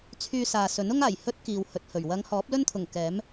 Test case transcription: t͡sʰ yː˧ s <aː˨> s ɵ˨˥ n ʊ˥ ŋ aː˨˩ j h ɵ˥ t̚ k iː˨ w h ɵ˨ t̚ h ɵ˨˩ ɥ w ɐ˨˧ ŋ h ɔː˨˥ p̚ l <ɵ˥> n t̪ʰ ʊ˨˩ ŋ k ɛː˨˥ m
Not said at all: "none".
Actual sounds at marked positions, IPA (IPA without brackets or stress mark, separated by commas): aː˨, ɵ˥